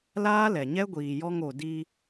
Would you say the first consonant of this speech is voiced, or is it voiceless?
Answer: voiced